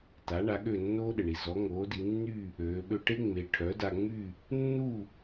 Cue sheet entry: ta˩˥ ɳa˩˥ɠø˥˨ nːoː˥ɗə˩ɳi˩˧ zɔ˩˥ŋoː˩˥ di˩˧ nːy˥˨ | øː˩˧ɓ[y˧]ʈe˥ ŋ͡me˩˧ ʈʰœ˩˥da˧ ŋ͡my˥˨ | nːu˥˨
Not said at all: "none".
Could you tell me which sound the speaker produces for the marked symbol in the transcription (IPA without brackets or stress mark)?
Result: ø˧